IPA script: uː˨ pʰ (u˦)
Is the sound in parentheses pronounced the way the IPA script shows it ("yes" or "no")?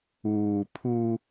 yes